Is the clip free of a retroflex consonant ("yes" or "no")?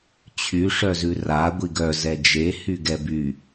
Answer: no